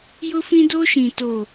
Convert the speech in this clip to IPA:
j ʊ˦ f ĩ˦ d o˦ ʃ ĩ˨ t o˨

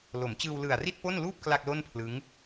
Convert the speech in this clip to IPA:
l o˩˦ m t͡ɕ ɯː˧ w l ɯ˨˩ a̯ r i˥˩ t̚ p o˥˩ n l uː˥˩ p̚ k l a˥˩ k̚ l o˥˩ n pʰ l ɯ˦˥ ŋ

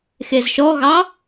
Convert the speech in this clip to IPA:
x e z ʃ ɔ ɣ ɑ

